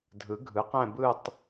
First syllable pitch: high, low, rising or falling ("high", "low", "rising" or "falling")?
rising